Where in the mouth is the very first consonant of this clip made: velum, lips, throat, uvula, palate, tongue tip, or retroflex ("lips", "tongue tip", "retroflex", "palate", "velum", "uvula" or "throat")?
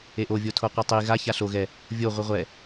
throat